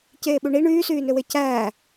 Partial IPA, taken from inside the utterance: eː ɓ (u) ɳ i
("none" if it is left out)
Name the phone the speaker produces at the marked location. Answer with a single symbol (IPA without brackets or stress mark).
u